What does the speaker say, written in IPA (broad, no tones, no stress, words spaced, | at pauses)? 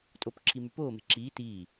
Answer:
tʼopǁʰi mypoːme̤ ǁiː tiː